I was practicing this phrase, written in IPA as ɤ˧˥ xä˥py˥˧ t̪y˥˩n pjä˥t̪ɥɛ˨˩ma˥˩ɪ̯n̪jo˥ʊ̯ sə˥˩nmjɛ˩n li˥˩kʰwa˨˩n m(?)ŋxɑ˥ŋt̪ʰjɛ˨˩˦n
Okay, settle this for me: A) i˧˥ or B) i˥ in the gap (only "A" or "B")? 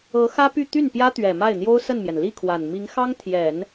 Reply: A